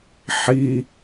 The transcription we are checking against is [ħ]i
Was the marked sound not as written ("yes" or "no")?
no